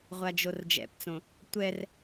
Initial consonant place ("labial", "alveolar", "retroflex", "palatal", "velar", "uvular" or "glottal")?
uvular